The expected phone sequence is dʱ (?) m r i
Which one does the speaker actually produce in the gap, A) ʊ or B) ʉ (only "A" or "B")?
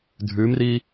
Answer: B